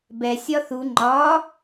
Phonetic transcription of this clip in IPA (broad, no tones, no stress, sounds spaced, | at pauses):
b ɛ sʲ ɒ θ u ŋ͡ǃ ɒ